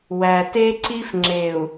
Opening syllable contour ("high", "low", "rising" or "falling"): low